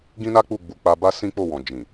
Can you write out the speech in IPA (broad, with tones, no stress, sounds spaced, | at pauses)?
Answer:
ɡ ĩ˦ n a˦ k͡p u˦˨ ɡ͡b u˨˦ k͡p a˧ b a˦ s ĩ˦ k͡p o˦˨ w ɔ̃˨ d͡ʒ ĩ˨